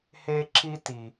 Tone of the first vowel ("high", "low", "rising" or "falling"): high